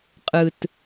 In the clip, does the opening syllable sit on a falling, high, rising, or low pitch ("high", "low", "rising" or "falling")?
low